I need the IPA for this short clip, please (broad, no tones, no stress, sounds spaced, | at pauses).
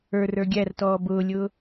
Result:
ə˞ r ə˞ ɡʲ æ r t ɔː b ʊː lʲ ʊ